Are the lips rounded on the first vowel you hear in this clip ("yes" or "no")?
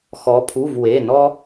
yes